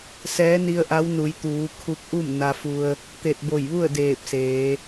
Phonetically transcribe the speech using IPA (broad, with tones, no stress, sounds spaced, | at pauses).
s ɛː˧˥ n i˧ ə̯ ʔ a˧˥ w n u˩˧ j t̪ uː˩˧ kʰ u˧ k̚ ʔ u˥˨ m n a˧ f u˧ ə̯ | t̪ e˧˩ t̚ b o˧˩ j ʋ u˥˨ ə̯ d eː˧˩ p̚ s eː˩˧